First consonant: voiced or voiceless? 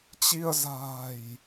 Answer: voiceless